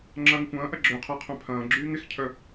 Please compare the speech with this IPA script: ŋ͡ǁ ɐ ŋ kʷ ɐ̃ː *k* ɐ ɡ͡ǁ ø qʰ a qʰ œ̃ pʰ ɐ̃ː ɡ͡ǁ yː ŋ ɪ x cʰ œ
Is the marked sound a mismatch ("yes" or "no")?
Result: yes